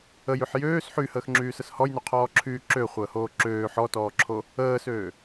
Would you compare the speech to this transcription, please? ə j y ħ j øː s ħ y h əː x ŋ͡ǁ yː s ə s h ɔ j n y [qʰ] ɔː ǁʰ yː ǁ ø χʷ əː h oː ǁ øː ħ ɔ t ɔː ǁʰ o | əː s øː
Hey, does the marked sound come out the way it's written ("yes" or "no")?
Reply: yes